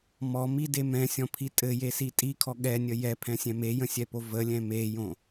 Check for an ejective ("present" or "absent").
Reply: present